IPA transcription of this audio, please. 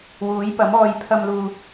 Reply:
w uː˨˥ j p ɐ˨˥ m ɔː˧ j pʰ ɐ˧ m l uː˨

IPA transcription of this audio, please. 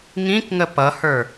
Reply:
ŋ ĩ k ŋ ə p ʌ h ə˞

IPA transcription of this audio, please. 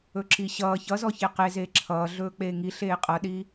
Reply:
ɵ ǁ i ɕ ʌː ç ʌ z ɔ ç e q e z eː ǁʰ ʌː ɮ ɵː k͡p eː ŋ i ɬ eː qʼ ʌ ɗ iː

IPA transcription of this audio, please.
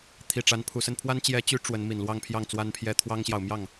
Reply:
t̪ʰ i˨˩ ʈ͡ʂ a˧˥ n pʰ u˨˩ s ə˥˩ n pʰ w a˥ n t͡ɕ j ɛ˧˥ t͡ɕ y˧˥ ʈ͡ʂ w ə˧˥ n m i˨˩ n l w ɑ˥˧ ŋ pʰ j ɑ˥˩ ŋ t͡s w a˥ n pʰ j ɛ˥ t̪ʰ w ɑ˥ ŋ ɕ j ɑ˨ ʊ̯ m j ɑ˥˩ ŋ

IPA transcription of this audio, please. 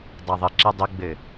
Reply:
dˤ a ðˤ ɘ ǁ ɛ dˤ ɵ ɡ͡b ɘ

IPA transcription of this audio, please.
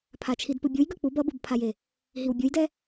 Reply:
pʰ a t͡ʃʰ i d p ɯ bʲ u j ɡ ʌ k͡p u b ʌ b ɯ b pʰ a j e | ɦ i w bʲ u j d ɛ

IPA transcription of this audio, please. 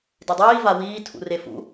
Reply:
d e dˤ iː v a w iː tʰ ṵ r e f ṵ

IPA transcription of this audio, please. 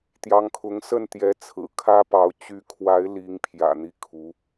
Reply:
t̪ j ɑ˧˥ ŋ kʰ ʊ˧˥ ŋ s ə˥˩ n t̪ j ɛ˧˥ t͡sʰ ɹ̩˨˩ kʰ ä˥ p ɑ˧˥ ʊ̯ t͡ɕ y˧˥ kʰ w a˧˥ ɪ̯ l i˧˥ ŋ pʰ j ä̰˨˩ n̪ i˥˩ kʰ u˧˥

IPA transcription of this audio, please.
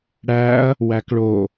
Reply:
ɽ æ ɐ̯ | w æ k ɭ o

